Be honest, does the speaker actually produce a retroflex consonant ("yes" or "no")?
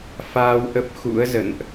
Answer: no